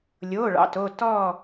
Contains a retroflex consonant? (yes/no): yes